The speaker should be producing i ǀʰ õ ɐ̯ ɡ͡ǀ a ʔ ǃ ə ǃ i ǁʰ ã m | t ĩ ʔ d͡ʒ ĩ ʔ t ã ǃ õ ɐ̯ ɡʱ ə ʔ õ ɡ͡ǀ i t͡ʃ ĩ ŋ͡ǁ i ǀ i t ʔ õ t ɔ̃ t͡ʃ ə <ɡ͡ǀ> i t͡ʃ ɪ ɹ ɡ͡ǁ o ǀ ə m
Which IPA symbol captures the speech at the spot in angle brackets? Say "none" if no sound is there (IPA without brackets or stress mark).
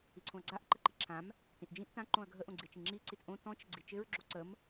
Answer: ɡ͡ǀ